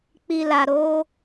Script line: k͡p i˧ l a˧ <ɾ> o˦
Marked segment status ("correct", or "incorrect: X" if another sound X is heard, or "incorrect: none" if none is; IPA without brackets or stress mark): correct